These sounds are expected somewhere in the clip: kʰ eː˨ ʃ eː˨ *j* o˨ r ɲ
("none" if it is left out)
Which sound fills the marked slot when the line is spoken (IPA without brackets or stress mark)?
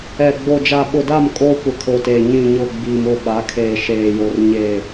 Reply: j